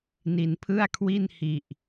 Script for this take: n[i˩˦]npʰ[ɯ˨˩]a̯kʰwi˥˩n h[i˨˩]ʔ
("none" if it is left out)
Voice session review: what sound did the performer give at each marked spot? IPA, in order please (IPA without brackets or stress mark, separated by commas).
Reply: i˩˦, ɯ˥˩, i˨˩